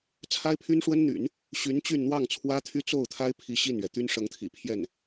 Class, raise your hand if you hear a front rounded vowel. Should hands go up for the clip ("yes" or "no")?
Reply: yes